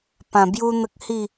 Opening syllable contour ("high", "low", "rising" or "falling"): low